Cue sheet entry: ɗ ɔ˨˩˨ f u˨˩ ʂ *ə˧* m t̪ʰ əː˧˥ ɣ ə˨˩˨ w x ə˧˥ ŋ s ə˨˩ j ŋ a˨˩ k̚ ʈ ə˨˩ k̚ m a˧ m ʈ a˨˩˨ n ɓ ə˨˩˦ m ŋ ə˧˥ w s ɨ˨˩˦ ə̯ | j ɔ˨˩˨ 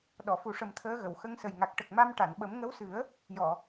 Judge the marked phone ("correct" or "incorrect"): incorrect